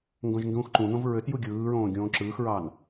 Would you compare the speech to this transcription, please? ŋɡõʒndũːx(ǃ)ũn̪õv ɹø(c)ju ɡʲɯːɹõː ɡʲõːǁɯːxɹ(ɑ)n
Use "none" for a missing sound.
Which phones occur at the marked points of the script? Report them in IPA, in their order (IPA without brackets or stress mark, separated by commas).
ǃ, t, ɑ